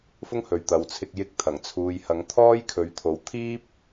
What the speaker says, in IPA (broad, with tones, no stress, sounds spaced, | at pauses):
f ʊ˥ ŋ h ɵ˨ ɥ t̪ ɐ˨ w t͡sʰ ɪ˧ k̚ j ɪ˧ k̚ t̪ʰ ɐ˨˩ ŋ t͡sʰ uː˨ j h ɐ˨˥ ŋ t̪ʰ ɔː˥ j kʰ ɵ˨ ɥ t̪ʰ o˨ w t̪ʰ iː˥ p̚